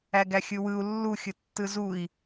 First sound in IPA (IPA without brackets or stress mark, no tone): æ